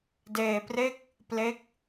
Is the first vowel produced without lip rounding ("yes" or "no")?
yes